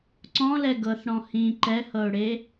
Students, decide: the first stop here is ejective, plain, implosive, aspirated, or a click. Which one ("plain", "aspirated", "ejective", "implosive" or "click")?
click